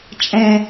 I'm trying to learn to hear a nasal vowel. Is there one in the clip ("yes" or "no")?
yes